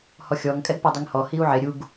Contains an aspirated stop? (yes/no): no